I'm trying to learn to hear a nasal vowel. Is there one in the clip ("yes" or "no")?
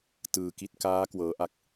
no